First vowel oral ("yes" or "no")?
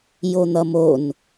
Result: yes